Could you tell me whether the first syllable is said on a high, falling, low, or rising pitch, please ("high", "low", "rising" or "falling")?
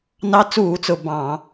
rising